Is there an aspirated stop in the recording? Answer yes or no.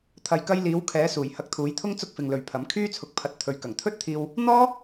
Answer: yes